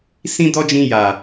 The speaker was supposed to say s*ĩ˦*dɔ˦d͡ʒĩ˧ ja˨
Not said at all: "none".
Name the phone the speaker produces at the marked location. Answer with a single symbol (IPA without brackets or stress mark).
ĩ˦